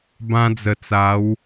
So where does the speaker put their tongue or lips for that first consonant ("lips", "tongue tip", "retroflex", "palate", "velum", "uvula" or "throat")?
lips